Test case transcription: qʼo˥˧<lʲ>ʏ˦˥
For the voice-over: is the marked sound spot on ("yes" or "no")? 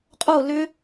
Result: no